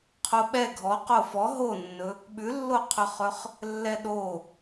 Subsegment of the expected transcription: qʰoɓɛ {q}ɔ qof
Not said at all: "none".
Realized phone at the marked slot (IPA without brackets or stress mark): ɡʱ